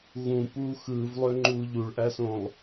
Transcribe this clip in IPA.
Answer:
ɣũ puːxɯːvlˠøŋ͡ǃuː ʎuɭʔæsõlˠ

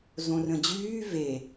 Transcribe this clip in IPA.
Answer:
zõrə̃d͡ʑyː ve

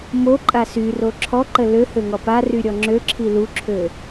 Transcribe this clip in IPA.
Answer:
moǃʼa syro ǁʰɔǃə løhøŋɔ paryɾʲɔ ŋ͡ǁøǁʰi luǁʰø

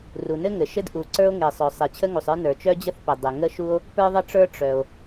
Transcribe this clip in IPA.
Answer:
ru˩nɘ˥ŋɘ˩ʃɘ˥d ʔu˩ ǀə˞˥o̯ŋe˩sˤœ˩ sˤe˩t͡ɕʰə˥ŋu˩sˤə˞˥ nə˞˩t͡ʃœ˥d͡ʑə˥θ pə˩ dˤɘ˩ŋə˥ʃu˥o̯ | pə˞˥ðˤə˥ʈ͡ʂə˞˥ ʈ͡ʂœ˩o̯

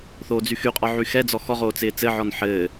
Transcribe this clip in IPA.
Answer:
θoːd͡zyxyqʼɔ ʕyxɛd͡zɔ xɔʁoː t͡sɪːt͡sɘʕɔn ħɘː

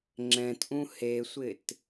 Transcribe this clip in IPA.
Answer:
ŋ͡ǁɛ̃tʔũ hesʷɪt

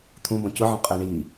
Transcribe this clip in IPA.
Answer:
t̪ʰũbɔ̃ cʊʕɔ̃ qʼɛɳi

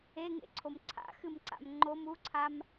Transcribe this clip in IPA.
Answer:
eŋḛǀʰom ǀʰa̰xɨmǀa̰m ŋ͡ǃom uǀʰam

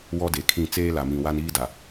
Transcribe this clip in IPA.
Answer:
wɔ˦de˨kʰĩ˦˨ t͡seː˦la˨mĩ˨ wa˦niː˦da˨

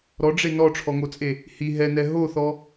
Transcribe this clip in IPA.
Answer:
ɾɔɖ͡ʐe nɔʈ͡ʂʰɔŋot͡sʼe | hi ɦɛnɛ ɦoθɔ

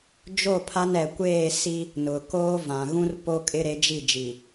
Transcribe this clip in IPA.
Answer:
d͡ʒo˦˨pʰa˦nɛ˨ kʷeː˦˨si˦ | nʊ˨ koː˦vã˨ ɣũ˦r po˦kʼɪ˦ɾe˨˦d͡ʒi˦˨ d͡ʒi˨

